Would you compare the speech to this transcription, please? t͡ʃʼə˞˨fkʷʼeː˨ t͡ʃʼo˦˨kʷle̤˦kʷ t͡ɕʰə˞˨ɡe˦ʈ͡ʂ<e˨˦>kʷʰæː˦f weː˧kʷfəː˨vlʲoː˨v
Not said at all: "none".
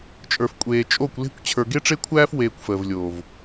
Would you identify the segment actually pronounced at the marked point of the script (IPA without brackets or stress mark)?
e˦